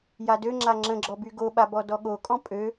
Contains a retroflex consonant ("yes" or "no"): no